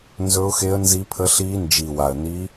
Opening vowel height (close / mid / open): mid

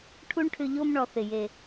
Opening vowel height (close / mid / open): close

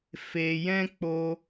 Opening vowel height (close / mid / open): mid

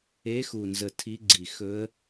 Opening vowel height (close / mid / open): mid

